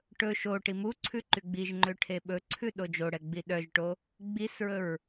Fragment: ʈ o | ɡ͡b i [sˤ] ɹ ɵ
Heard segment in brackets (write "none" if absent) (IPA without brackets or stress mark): s